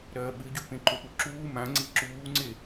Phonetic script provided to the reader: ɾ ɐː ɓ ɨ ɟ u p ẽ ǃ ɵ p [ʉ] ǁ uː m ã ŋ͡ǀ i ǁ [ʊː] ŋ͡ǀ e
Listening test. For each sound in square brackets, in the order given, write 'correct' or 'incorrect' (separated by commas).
incorrect, incorrect